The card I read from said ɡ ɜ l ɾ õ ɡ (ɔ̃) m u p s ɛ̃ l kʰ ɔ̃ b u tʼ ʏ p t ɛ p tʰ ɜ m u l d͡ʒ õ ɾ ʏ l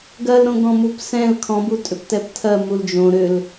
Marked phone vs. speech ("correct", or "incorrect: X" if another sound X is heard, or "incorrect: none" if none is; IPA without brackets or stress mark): correct